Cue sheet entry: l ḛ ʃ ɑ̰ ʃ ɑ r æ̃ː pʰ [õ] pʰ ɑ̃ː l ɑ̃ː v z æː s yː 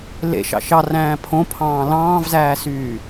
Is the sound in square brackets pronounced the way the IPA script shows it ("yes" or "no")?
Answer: yes